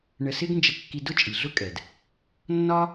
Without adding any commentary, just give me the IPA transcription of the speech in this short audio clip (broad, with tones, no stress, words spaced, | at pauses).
ɳə˧sɪ˥ɡ nd͡ʒə˧kːi˧ dʊ˥t͡ʃʼi˩ ɮʊ˥kʼɛ˩d | nːɒ˥